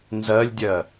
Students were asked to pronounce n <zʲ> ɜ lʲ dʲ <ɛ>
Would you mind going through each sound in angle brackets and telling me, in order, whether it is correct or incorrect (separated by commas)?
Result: incorrect, incorrect